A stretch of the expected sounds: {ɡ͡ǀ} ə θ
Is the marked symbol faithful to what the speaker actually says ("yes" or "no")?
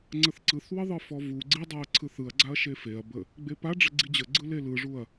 no